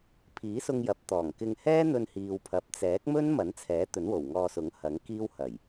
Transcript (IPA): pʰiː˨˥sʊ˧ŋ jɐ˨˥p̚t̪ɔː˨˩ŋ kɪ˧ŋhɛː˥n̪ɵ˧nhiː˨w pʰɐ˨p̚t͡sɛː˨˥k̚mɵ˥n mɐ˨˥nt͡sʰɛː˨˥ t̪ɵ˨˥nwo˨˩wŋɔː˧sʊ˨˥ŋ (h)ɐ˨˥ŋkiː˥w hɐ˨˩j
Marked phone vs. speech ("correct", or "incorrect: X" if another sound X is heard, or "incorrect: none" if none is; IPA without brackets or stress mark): correct